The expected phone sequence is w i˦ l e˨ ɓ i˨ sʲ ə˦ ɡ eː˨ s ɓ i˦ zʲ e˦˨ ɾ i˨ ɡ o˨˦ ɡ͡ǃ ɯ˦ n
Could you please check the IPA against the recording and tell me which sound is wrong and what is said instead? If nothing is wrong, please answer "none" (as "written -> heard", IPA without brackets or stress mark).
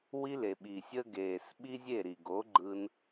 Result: none